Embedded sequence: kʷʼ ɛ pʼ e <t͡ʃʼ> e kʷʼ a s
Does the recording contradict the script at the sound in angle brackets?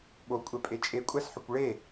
no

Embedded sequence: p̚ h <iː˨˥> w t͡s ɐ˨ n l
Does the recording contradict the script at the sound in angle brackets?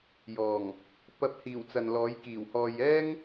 yes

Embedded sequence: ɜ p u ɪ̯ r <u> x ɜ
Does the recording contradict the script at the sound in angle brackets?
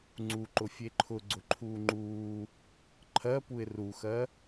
no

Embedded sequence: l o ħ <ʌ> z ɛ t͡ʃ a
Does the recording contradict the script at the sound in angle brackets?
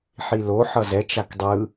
no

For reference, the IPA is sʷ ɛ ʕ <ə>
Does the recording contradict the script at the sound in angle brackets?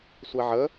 no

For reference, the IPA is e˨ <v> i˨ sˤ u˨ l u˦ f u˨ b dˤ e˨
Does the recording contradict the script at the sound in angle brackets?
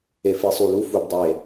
yes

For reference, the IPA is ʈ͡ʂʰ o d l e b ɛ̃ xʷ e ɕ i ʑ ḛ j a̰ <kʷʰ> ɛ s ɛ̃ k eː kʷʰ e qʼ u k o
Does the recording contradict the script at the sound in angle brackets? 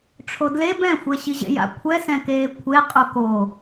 no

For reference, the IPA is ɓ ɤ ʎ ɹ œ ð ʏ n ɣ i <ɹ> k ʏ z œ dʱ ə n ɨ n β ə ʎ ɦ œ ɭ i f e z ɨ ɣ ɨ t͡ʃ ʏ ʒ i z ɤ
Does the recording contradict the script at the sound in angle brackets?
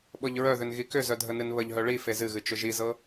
yes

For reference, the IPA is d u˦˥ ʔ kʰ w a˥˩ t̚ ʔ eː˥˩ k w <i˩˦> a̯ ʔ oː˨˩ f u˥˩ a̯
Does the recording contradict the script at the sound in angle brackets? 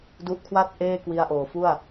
yes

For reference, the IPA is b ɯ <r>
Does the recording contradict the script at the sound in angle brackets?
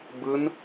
yes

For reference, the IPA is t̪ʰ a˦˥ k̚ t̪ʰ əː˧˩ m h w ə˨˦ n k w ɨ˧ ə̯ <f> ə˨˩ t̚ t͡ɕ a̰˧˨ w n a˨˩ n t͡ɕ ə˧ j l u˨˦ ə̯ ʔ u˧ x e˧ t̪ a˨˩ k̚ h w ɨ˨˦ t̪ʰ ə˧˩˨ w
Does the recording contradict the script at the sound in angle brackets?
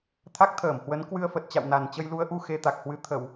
no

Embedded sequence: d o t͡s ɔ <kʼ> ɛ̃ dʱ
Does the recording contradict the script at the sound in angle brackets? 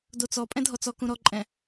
yes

